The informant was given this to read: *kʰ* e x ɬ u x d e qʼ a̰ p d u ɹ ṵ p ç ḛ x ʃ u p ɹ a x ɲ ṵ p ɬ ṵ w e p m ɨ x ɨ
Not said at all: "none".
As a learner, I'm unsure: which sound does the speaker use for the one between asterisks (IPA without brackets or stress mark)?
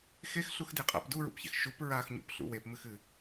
x